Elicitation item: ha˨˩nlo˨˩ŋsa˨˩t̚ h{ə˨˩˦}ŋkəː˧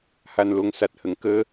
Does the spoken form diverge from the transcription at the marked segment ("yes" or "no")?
yes